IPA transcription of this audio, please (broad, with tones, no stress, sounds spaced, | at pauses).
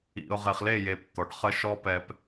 ḭ˨ ʊ̯ ʁ e˨ χ l e˦˨ j e˨ p t̪ ɔ˨ ɖ χ ə˦ ʃ ɔ˦ p ɛ˨ p